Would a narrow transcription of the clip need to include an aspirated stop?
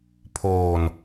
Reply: yes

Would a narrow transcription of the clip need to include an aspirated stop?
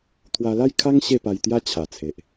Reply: yes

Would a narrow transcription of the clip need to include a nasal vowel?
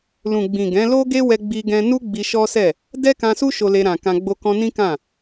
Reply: yes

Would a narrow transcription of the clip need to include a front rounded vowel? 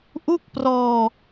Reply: no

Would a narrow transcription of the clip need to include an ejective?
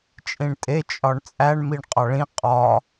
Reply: yes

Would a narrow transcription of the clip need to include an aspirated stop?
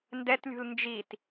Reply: no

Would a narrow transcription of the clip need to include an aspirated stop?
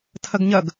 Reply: yes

